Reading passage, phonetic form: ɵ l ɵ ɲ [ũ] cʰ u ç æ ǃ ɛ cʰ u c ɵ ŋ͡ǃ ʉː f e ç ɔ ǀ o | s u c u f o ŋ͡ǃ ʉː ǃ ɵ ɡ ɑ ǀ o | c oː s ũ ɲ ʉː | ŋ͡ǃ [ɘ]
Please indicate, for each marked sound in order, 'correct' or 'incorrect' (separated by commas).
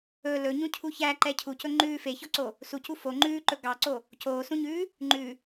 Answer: correct, incorrect